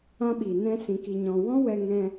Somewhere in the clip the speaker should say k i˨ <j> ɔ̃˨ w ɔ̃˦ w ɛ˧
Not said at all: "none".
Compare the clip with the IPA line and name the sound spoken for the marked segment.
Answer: ɲ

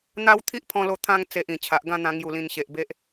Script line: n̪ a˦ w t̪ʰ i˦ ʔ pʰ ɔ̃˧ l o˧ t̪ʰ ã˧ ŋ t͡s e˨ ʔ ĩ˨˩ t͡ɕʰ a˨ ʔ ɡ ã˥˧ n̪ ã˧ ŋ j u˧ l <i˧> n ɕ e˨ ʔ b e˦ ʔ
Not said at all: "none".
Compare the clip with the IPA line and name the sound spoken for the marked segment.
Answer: ĩ˧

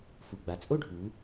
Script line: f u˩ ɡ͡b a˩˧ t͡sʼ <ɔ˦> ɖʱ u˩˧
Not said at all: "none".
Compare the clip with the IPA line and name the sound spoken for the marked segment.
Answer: o˦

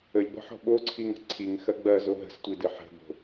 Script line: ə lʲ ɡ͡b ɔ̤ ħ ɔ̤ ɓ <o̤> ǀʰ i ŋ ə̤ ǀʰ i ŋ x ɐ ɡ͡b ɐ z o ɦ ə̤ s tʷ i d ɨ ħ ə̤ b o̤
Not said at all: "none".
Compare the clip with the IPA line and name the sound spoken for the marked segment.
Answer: o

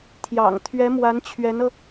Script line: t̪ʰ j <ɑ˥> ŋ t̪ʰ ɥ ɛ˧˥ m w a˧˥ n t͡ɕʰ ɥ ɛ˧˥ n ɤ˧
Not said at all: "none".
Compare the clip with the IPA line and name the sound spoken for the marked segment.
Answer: ɑ̰˨˩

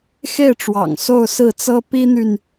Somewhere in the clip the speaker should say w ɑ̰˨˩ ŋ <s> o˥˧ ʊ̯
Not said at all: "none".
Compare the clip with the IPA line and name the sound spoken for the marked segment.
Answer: s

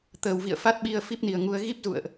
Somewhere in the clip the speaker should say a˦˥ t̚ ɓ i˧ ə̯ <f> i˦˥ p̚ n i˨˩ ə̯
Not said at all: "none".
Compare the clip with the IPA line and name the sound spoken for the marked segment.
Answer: f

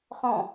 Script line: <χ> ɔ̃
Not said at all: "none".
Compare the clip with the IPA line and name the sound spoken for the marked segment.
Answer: χ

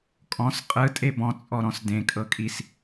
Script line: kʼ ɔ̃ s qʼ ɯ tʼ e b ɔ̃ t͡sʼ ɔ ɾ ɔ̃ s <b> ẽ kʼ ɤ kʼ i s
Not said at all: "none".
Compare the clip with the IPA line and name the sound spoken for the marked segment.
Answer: d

